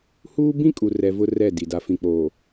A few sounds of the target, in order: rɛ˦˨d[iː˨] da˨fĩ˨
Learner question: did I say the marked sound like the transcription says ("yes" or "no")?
no